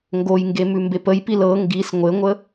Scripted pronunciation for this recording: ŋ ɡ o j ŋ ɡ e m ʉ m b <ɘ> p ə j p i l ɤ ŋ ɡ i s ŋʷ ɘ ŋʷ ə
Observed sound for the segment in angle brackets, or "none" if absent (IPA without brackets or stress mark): e